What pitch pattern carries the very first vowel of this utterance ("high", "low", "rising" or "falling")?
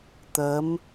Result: rising